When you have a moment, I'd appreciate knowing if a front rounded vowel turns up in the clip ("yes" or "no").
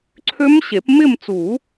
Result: yes